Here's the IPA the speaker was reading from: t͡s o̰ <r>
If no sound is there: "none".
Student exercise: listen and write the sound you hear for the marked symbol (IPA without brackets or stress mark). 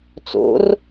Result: r